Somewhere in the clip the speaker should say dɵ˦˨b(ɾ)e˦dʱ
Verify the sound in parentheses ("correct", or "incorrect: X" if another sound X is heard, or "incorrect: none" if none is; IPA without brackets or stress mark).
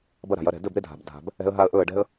correct